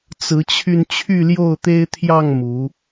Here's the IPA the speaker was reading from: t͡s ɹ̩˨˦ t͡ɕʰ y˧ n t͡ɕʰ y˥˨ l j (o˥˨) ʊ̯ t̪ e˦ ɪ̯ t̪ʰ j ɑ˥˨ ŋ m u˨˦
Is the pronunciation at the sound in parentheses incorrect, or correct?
correct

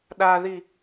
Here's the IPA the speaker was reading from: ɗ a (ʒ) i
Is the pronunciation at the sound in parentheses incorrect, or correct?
incorrect: ð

